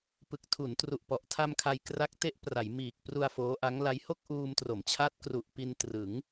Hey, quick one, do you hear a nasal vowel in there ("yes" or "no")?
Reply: no